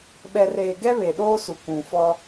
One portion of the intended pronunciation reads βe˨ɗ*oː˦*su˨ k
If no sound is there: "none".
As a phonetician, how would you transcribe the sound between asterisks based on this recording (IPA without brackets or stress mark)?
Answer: oː˦